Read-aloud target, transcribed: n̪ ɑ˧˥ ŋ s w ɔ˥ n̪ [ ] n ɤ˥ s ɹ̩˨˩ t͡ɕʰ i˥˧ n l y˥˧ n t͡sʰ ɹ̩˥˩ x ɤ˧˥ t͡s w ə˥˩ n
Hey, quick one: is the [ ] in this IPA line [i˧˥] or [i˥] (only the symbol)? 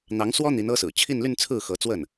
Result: i˧˥